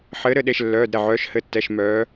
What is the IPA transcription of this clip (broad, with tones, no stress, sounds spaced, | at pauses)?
ħ ɘː˨˦ ɾ ɘ˧˩ ɗ e˧˩ ʃ lː œː˩˧˩ d ɾ ɛ˥˩ ʕ œː˨˦ ʃ h ɘ˩˧˩ tː ɛ˩˧˩ ʃ m œː˨˦